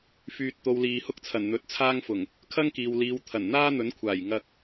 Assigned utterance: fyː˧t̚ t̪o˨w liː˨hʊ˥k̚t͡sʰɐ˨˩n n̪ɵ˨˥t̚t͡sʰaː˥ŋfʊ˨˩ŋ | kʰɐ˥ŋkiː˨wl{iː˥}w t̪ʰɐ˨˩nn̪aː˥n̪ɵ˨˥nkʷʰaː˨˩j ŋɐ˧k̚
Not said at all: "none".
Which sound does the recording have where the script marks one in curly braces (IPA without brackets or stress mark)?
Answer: iː˨˧